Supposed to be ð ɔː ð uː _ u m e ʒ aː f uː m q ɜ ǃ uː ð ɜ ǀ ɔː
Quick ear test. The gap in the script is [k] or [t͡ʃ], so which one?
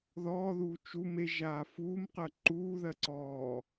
t͡ʃ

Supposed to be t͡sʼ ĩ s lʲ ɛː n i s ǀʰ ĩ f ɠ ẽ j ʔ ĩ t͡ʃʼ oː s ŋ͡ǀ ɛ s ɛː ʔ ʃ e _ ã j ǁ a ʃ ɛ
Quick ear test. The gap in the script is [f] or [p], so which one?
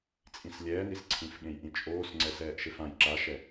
f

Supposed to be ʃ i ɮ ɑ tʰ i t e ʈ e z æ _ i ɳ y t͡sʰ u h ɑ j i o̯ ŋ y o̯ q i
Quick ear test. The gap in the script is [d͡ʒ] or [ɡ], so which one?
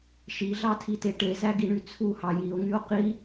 ɡ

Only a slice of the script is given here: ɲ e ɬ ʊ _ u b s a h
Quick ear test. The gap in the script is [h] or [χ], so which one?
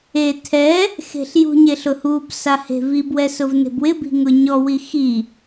h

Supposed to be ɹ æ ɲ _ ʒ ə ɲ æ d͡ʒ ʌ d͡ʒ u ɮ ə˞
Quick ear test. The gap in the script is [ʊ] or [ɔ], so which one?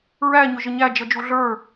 ʊ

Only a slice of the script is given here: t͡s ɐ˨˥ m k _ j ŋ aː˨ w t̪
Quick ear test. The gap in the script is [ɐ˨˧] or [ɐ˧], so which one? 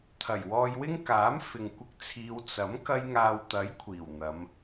ɐ˧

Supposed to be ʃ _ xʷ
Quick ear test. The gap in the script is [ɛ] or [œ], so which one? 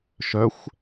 œ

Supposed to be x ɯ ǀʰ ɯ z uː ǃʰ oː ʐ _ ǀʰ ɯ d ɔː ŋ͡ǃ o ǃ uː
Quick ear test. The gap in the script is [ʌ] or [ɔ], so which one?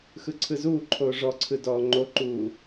ɔ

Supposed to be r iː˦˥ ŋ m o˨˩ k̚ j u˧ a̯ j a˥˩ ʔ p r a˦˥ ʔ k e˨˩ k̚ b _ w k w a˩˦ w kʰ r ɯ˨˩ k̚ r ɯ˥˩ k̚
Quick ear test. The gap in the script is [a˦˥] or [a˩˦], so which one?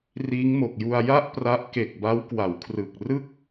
a˦˥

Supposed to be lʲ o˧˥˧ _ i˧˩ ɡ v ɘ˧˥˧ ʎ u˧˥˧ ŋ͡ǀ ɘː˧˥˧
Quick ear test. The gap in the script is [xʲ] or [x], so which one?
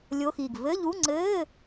x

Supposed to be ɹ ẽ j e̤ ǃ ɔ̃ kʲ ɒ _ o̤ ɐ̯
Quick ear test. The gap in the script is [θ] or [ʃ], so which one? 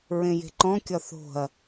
θ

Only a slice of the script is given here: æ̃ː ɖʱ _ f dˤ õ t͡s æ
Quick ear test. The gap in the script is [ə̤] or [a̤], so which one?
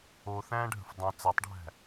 ə̤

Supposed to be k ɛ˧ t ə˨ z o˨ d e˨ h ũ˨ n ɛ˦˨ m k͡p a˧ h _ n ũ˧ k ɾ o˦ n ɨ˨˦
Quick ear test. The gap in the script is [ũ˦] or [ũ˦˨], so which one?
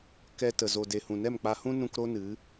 ũ˦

